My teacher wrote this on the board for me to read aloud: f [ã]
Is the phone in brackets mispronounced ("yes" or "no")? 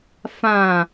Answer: no